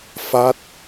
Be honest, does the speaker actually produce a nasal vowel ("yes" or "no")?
no